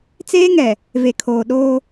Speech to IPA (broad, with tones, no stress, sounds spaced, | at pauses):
t͡s eː˦ ŋ ɛ˨ | v e˨ kʰ oː˨ ɗ oː˦